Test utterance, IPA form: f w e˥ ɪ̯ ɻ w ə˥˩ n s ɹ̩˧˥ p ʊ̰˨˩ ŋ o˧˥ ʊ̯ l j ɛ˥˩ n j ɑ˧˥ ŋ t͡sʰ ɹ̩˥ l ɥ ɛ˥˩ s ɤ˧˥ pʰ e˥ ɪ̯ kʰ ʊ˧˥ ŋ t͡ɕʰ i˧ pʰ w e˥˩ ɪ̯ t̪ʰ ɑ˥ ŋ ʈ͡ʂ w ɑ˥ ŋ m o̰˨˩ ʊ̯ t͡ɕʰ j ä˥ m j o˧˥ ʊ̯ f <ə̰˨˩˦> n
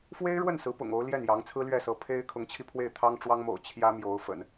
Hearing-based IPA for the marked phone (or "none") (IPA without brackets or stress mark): ə̰˨˩˦